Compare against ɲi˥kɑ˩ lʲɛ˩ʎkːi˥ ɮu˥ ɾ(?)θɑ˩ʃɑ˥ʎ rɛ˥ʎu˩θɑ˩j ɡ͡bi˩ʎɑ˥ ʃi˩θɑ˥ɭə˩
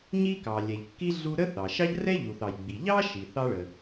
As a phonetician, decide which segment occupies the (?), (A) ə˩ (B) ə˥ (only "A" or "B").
B